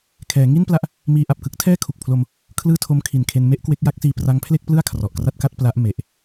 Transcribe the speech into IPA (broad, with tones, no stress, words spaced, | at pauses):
kʰɛː˩˦ŋi˥˩npla˦˥ʔ | miː˧ʔa˨˩p̚kɯ˦˥k̚ tʰɛː˥˩kʰu˨˩k̚pʰlo˧m | kʰlɯː˥˩tʰo˦˥mkʰi˨˩nkʰe˧n me˥˩ʔkwe˦˥k̚ja˦˥k̚siː˧ pra˦˥ŋpʰle˥˩k̚plɯ˥˩a̯ kʰrɔ˨˩ʔkra˥˩t̚ka˥˩t̚ pla˦˥ʔ me˨˩ʔ